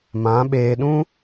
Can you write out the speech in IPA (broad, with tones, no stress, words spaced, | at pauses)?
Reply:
mã˨˦ɓeː˧ ɗũ˦